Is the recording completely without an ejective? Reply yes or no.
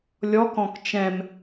yes